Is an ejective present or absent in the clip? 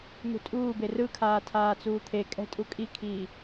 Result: present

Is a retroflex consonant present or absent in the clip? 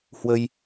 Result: absent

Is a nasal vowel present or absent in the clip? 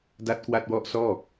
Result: absent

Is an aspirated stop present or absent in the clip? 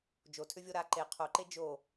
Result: present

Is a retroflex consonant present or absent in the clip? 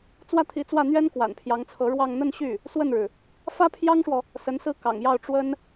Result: present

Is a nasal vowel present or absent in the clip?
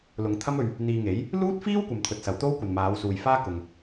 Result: absent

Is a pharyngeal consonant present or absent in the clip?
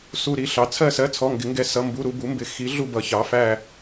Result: absent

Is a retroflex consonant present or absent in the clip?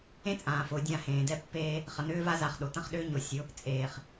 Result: absent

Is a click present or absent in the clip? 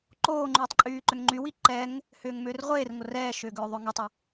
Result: present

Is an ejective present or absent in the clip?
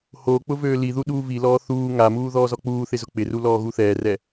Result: absent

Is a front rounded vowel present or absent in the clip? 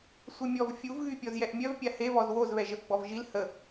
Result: present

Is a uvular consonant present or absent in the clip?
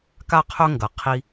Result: present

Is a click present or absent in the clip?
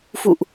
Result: absent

